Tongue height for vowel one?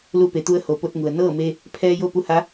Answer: high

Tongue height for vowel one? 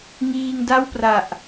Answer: high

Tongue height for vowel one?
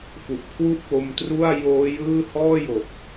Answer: high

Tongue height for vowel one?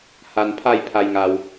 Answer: low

